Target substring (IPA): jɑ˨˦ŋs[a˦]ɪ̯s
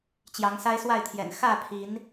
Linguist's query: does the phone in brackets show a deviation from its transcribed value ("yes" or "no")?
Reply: no